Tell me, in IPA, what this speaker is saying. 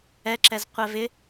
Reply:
ɛ ǁ ɛ z qʷ ɛ v ɪ

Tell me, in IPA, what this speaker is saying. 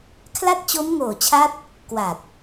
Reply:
kʰ l a˥˩ t̚ t͡ɕ o˦˥ m ŋ oː˨˩ t͡ɕʰ a˦˥ t̚ | k w a˨˩ t̚

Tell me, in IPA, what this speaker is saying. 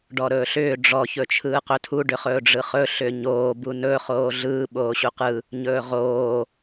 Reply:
ɖ ɔ ɾ ɵː ɬ ʏː ɖ͡ʐ ɔ ç ɵ t͡ʃʰ ɯː q ɵ tʰ u ɖ ʏ χ ɵː ɖ͡ʐ ɯ χ ɵ ɬ ʏ ɲ oː b u n ɵ χ oː ɮ ɯː ɓ oː ɕ u q ɯ | ɲ ɵː ʁ oː

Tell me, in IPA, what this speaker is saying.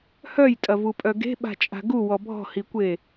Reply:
h œ j tʼ ɐ v u pʼ œ ɡ e̤ ɓ a̤ t͡ʃʼ a̤ ɡ u w ɔ bʱ ɔ̤ h i kʷ e

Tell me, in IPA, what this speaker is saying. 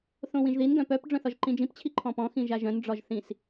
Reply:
θ õ w ĩ ʒ ð i n ɡ œ̃ p œ p ɖ͡ʐ œ̃ θ ɒ ʒ ǃ ĩ d͡ʒ ĩ p t͡ɕʰ i ǃʰ ɔ̃ p ɔ̃ x ĩ ʒ a ʒ œ̃ n ɖ͡ʐ ɒ ʒ θ ĩ s

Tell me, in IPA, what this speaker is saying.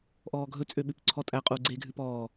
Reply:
ʔ ɔː ɡʱ ɵ t͡sʼ ø ɓ ʉ p ǀʰ ɔ tʼ æ qʼ uː ɡ͡ǀ eː ɡʱ ʉ p ɔː

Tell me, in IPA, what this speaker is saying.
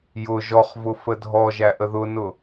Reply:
j ʊ ʒ ɔ χ v ʊ f ə dʱ ɔ ʒ æ ʔ ə ð ʊ n ʊ

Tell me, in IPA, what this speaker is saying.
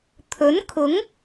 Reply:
t̪ʰ ɵ˨˥ n kʰ ʊ˨˥ ŋ

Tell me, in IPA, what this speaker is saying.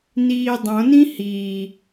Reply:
n iː dˤ õ n ĩ h iː

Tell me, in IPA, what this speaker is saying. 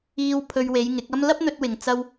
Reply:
iː˧ w pʰ ɵ˧ ɥ w e˨˧ j ŋ ɪ˨˥ k̚ ɐ˥ m l ɐ˥ p̚ n̪ ɵ˧ t̚ w ɪ˨ ŋ t͡s ɐ˧ w

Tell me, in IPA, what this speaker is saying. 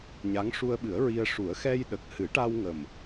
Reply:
ɲ a˧˥ ŋ ʂ u˧ ə̯ ɓ ɨ˨˩˦ ə̯ ɹ i˧ ə̯ ʂ u˨˩˦ ə̯ x ɛ˧ j ɗ ə˨˩ k̚ h ɨ˨˩˦ ʈ a˧ w ŋ ə˨˩ m

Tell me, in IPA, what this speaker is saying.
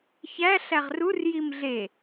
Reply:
ç æ ɬ æ ʁ r u r j i m ɮ e

